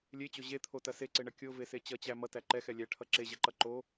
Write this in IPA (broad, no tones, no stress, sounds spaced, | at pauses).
lʲ e t͡ɕ o ʑ e t̪ʰ o t ɐ s e ǀ e ɳ ɐ kʲ o v e s e t͡ɕ ʌ t͡ɕ æ m ʌ t æ ǃ ɛ x ɛ lʲ æ ʈʰ ʌ ǁ e ʑ ɐ ǃ ʌ ǃ o